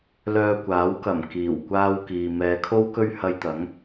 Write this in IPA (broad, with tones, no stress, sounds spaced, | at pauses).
l œː˧ kʷ aː˨˥ w k ɐ˨˩ m k iː˨˩ w kʷ aː˥ w k iː˨ m ɛː˨˧ kʰ o˥ w k ɵ˥ ɥ h ɐ˧ j t̪ ɐ˨˥ ŋ